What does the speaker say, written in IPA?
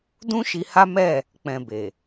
d ũ˦ ʃ i˧ h a˦ m ɛ˦˨ | k͡p ɛ̃˨ b e˨

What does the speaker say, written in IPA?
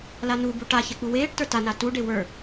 l a n u b u ʈ a ç ɛ k͡p u w eː ʈ t ə˞ t a n a t u ɖ e w ə˞

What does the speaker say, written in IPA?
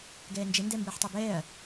ɡ ɛː n d͡ʒ ɘ n d ɛ m b ɘː ħ tˤ ɛ b ɛː ɐ̯

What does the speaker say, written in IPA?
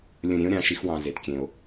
lʲ ə̃˦˨ ɾʲ ẽ˥ o̯ ɾʲ ɑ̃˨˦ ʃ i˨˦ x w ɑ̃˨ z e˨ t kʲ ẽ˨ o̯

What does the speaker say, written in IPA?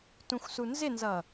t ũ xʷ s u n z ɪ n z ʌ

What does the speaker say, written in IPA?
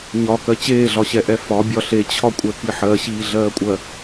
ɲ ɒ k ɜ t͡ɕ eː ɮ ɒ ɕ ɛ ʔ ɛ f ɒ bʲ ɒ ɬ e t͡ɕʰ ɒ kʷʼ ɛ k i ħ ɜ ɕ iː ɮ ɜː kʷʼ ɜ

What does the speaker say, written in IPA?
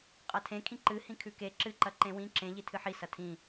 qʼ ɐ tʰ ẽ kʰ ĩ ǃ ɨ h ĩ kʰ ʉ k e ǁ ɨ ǃ ɐ ǃ ẽ w ĩ ǁ ẽ ʎ i tʰ ɨ ħ i s ɐ tʰ ĩ

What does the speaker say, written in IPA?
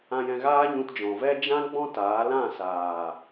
ã˧ j ɛ̃˧ ɣ aː˦ ɲ ũ˧ t d͡ʒ ɔ̃˨ v ɛ˦ d͡ʒ ã˦ ɡ͡b ɔ̃˦ t aː˨˦ l ã˦˨ s aː˨

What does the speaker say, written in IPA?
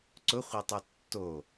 ǀ ʊ χʷ e tˤ u tː o

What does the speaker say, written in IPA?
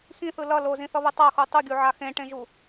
x ĩ θ ɯ l ʌ l o z ĩ θ ʌ β ɯ tˤ a x u tˤ u ɡʲ u ʕ a x ẽ ʈ ẽ ʒ u

